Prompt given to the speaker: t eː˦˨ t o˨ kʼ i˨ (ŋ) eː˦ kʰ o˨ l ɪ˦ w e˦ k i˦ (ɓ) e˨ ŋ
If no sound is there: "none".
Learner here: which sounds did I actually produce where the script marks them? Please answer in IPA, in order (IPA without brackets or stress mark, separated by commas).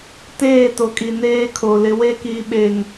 n, ɓ